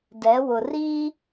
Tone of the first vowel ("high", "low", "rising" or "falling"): rising